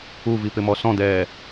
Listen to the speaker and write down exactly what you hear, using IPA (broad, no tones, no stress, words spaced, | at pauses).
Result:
uvipɪmɔ sɔ̃d̪ɛː